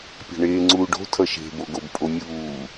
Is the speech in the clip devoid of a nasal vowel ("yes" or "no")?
yes